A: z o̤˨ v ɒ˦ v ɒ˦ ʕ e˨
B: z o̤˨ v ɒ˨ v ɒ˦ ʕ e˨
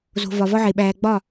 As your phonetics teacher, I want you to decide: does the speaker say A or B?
B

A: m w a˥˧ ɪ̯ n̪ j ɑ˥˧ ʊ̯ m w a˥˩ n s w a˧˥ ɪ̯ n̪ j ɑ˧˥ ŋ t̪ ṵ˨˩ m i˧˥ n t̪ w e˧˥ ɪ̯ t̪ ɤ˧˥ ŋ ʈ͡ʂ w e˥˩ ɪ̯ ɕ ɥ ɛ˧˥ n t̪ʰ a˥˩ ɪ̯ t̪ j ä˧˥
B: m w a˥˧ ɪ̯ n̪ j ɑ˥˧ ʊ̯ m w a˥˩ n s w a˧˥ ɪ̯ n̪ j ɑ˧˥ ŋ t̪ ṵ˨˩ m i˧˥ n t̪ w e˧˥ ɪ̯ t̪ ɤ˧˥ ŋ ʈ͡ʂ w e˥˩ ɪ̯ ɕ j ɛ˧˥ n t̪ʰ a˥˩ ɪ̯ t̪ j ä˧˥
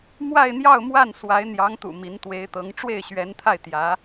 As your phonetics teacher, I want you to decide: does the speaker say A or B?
A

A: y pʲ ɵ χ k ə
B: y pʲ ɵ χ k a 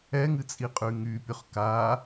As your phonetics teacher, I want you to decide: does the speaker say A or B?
B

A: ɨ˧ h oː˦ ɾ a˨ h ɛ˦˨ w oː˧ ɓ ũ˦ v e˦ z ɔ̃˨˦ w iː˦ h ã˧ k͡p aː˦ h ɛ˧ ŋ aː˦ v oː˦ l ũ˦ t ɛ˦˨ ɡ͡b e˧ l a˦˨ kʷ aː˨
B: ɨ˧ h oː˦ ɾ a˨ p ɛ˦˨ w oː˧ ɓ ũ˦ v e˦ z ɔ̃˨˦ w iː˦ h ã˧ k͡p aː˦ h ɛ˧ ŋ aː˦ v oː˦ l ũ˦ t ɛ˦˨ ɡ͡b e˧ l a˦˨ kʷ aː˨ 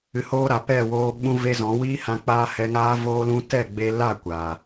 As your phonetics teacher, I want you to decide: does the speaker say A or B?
B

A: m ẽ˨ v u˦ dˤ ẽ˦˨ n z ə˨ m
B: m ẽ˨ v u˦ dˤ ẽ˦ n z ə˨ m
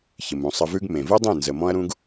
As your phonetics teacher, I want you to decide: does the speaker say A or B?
A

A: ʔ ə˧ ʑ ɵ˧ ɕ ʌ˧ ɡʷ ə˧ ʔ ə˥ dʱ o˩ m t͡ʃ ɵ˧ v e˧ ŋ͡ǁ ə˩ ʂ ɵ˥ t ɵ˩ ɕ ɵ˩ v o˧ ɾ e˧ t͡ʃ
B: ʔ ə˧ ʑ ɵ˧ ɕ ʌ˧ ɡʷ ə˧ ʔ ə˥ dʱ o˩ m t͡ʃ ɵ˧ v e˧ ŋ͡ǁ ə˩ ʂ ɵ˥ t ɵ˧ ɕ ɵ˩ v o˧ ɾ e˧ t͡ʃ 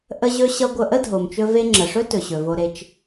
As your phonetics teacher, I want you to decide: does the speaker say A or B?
A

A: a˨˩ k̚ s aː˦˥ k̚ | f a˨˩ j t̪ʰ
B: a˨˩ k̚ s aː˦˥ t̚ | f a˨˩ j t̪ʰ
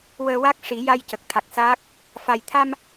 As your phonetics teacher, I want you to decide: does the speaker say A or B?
A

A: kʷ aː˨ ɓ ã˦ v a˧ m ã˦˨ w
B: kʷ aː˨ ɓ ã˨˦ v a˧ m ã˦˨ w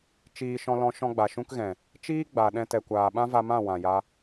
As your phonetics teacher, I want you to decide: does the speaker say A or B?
A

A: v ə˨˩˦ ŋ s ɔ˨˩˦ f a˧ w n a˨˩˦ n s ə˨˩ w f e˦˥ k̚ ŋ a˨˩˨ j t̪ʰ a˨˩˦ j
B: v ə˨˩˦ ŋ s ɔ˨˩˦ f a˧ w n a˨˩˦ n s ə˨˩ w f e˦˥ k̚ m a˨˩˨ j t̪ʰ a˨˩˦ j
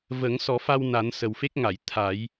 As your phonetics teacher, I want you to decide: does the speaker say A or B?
A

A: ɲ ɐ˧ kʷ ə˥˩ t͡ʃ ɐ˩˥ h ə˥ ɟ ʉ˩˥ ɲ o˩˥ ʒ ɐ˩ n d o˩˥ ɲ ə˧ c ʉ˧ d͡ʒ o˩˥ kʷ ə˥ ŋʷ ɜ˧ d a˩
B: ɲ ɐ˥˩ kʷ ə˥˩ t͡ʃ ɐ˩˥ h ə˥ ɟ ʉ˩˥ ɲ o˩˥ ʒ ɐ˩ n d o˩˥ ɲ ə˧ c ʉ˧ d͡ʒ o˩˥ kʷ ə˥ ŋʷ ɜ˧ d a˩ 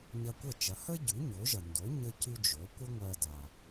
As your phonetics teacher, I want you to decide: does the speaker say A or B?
A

